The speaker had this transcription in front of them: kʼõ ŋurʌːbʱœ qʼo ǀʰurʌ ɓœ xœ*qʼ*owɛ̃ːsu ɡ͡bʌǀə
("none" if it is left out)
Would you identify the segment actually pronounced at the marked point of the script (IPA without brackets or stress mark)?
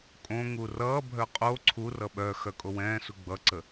kʼ